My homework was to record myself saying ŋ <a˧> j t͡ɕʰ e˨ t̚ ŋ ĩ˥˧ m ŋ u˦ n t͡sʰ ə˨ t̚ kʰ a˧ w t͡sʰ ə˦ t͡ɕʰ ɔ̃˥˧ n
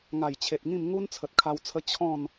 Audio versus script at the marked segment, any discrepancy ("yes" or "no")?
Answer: yes